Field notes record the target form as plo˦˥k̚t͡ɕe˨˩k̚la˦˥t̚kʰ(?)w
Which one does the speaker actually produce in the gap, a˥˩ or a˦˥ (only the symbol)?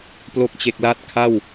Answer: a˥˩